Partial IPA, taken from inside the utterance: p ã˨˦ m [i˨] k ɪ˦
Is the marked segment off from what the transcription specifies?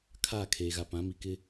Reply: no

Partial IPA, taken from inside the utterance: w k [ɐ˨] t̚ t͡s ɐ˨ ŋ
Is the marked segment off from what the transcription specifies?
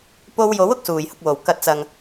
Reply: no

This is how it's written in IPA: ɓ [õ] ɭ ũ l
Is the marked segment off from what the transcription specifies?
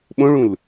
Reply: no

